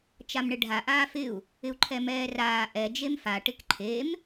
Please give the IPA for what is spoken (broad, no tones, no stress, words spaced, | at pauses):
t͡ʃamɳɪɖʱa ʔaːfɪu̯ | ɪu̯ǃʰɛmɛːraː ʔɛ d͡ʒemfa ʈɪkǃʰem